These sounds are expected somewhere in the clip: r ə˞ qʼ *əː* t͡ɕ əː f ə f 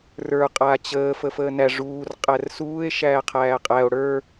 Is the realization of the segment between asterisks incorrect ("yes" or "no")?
yes